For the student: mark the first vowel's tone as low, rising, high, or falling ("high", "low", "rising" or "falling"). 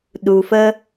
low